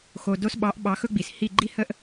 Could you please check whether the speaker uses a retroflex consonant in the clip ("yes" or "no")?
no